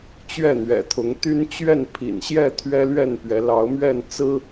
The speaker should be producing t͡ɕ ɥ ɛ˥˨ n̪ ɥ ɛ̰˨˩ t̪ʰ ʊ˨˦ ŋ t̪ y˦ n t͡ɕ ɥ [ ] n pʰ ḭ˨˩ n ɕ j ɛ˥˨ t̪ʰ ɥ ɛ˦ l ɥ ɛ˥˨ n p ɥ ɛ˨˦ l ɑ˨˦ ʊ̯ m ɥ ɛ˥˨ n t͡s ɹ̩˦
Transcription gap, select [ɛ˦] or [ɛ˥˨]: ɛ˥˨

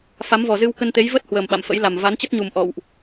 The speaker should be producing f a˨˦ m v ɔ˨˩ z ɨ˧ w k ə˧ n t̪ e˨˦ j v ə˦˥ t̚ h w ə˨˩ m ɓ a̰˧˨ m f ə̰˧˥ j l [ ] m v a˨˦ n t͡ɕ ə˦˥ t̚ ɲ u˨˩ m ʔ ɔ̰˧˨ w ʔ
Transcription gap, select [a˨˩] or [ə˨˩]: a˨˩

